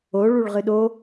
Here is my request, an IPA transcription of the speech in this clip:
o ɭuɭʁɨɗo

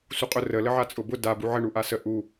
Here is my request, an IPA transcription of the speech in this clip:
suqʼʊ rə ləʕat͡sʼʊbʊ da buʕə ɳuʔasə ʔu

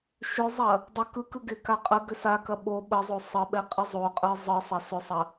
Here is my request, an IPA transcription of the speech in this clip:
ʃʏzˤɐ | dˤə kɯkɯ ɡɪka qʼəɡʏ sakɐ ɓo ɓəzˤo sˤəɓɛ qʼɪzˤoqʼɯ zˤɯsˤɐ sʏsˤɐ

